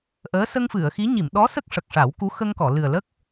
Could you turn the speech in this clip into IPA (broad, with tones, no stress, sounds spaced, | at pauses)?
ʔ əː˧˥ s ə˧ ŋ f ɨ˨˩˨ ə̯ x i˧˥ ɲ i˨˩˨ m ɗ ɔ˧˥ s ə˦˥ k̚ ʂ ə˨˩ k̚ ʂ a˨˩˦ w k u˧˥ x ə˧ ŋ k ɔ˨˩˨ l ɨ˨˩ ə̯ l ə˦˥ k̚